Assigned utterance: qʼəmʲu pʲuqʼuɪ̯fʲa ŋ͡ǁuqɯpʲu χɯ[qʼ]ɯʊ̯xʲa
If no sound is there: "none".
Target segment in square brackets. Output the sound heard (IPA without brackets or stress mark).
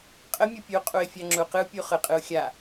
qʼ